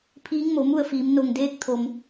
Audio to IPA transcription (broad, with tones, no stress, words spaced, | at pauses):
pʰiː˧˥ŋmo˩˧mu˥˨ə̯fiː˩˧m no˩ŋdeː˧k̚ t̪ʰo˩m